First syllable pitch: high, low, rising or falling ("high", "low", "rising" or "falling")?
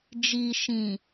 low